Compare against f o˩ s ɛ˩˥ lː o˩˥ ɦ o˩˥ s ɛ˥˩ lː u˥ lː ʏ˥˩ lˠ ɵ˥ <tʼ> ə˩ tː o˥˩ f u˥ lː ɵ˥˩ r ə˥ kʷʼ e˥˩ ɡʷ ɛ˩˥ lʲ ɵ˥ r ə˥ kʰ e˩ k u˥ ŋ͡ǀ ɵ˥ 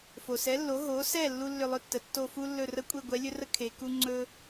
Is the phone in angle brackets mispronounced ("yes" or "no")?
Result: yes